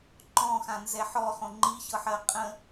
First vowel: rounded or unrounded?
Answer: rounded